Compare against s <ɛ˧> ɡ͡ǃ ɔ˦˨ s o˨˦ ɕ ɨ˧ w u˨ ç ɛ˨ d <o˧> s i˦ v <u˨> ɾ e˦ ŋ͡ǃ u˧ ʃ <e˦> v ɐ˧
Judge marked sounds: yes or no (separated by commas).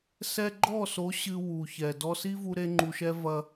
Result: yes, no, no, no